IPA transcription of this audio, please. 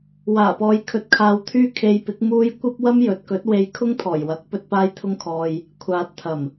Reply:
w aː˨˩ p ɔː˨˧ j kʰ ɵ˨ t̚ kʰ aː˧ w t̪ʰ yː˥ kʰ e˧ j p ɪ˨˥ k̚ m uː˥ j kʷ ɐ˥ p̚ w ɐ˥ m j ɵ˨˥ t̚ k ɵ˨˥ t̚ w e˧ j kʰ ʊ˥ ŋ t̪ʰ ɔː˨˩ j w ɐ˨˥ k̚ p ɵ˧ t̚ p aː˧ j t̪ʰ ʊ˧ ŋ kʰ ɔː˨ j | kʷʰ aː˨ t̚ t̪ʰ ɐ˨˩ m

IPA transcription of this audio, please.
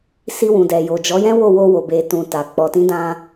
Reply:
s i˧ w ũ˨ d ɛ˨ j o˨ d͡ʒ ɔ˨˦ j ɛ̃˦ w o˦˨ w o˧ w o˨ b e˨ t ũ˨ t a˨ k͡p ɔ˨ t ĩ˨˦ d ã˧

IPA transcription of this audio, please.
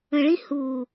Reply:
ə̃ ɭ ĩ h u

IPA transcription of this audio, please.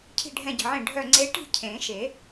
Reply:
cʰ i̤˥˧ ɖʱ ɛ̃˥˧ ɟ ə̤˧˩ ʕ ẽ˥˩ ɖʱ œ˥˧ ŋ͡ǀ e˧˥ ʈ i̤˥˧ cʰ ẽ˨˩˦ ʃ e˨˩˦

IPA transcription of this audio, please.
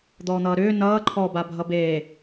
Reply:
d̪ ɔː n̪ ʌː ɾ ʏː n ʌː ǃʰ ɔ b a bʱ ʌ b eː

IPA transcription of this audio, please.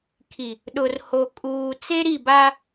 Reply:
kʰ i˨ | ɗ ʊ˨ r h o˨ kʼ uː˨ t͡s e˦ ɾ i˦˨ b a˦

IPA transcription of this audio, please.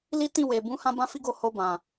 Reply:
l i˦ t ĩ˦˨ w e˨ b ũ˨˦ h ã˦ b ã˦ f i˦ ɡ o˦˨ h o˧ b ã˨

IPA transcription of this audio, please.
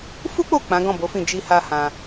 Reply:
f u˦ k͡p o˦˨ k͡p ã˨˦ ɡ ɔ̃˦˨ b o˨˦ f ĩ˦˨ d͡ʒ i˧ h a˧ h ã˧

